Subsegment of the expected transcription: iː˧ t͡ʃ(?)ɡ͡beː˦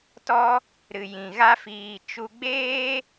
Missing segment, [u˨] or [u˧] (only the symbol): u˧